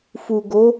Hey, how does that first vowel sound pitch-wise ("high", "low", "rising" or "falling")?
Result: low